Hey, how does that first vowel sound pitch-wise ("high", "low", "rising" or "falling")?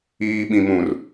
high